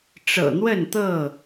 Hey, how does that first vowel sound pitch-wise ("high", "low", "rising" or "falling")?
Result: low